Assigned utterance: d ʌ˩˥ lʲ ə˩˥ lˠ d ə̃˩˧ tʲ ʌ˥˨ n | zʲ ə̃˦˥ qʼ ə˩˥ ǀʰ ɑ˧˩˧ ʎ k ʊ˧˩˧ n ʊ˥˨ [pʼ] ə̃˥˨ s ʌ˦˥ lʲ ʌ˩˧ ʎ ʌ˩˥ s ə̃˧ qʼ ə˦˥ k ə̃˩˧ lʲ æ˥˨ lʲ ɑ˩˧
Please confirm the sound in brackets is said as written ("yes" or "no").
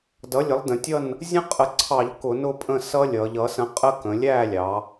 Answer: yes